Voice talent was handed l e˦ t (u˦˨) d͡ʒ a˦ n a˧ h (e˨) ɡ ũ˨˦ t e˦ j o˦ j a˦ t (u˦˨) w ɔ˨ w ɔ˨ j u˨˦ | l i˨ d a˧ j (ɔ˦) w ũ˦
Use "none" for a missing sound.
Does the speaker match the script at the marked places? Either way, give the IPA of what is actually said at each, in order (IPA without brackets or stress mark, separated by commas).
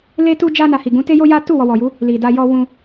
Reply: u˦, i˨, u˦˨, ɔ˦